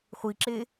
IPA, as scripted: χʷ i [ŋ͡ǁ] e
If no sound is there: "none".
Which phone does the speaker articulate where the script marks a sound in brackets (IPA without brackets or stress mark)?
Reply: ǁ